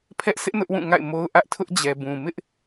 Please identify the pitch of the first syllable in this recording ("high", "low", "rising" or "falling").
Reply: high